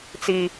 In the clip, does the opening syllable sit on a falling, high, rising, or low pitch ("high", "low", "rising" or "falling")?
high